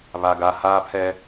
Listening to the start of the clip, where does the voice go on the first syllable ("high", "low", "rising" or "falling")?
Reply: low